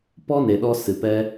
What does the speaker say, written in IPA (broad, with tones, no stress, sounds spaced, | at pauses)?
p ɔ˦ n e˨ ɗ ɔ˧ s ɨ˨ p ɛ˦